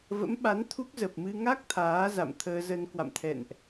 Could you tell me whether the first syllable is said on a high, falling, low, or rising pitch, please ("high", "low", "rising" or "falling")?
rising